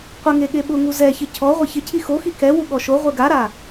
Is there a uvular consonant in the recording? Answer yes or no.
yes